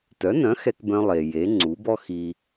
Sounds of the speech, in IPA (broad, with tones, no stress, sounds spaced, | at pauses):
t œ˩˥ n œ̃˩˥ x ɛ˧ k b œ̃˧ lˠ e˩ j e˩˥ ŋ͡ǀ u˩˥ b ɔ˥ x i˧